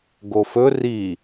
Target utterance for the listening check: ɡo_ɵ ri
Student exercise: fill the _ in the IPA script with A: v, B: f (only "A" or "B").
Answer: B